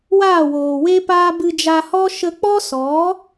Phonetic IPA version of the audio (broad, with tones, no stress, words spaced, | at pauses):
waː˦˨woː˨we˦paː˦ bɨ˧d͡ʒa˧hɔ˦ ʃə˧k͡pɔ˦sɔ˨˦